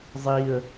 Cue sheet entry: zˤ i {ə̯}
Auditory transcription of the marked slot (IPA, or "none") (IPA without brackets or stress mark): ə̯